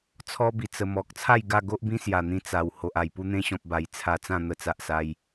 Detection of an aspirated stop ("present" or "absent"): present